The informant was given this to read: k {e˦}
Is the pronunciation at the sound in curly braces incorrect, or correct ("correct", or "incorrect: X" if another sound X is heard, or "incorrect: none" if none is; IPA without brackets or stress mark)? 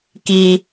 incorrect: i˦